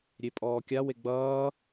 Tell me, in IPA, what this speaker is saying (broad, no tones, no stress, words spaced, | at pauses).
ɾʲepʼɔːkʲa weɡ͡bʌː